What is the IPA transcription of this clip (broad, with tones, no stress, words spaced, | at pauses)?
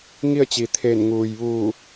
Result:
ŋi˥˨ə̯ t͡ɕi˩ t̪ʰeː˧˩n ŋuː˩j ʋuː˧˩